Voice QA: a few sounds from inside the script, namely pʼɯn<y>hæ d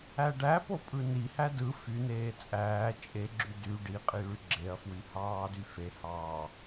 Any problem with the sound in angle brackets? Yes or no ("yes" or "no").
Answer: yes